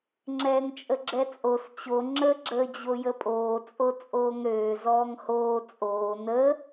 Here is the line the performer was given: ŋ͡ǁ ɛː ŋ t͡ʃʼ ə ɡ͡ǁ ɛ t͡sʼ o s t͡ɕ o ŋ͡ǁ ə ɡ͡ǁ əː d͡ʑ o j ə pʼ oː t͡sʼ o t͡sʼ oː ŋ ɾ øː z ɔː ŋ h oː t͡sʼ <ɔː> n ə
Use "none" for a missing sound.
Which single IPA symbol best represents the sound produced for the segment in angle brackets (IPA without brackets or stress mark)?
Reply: oː